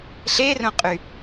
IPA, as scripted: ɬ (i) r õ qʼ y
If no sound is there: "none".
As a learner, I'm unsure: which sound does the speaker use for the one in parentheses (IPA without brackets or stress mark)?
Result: e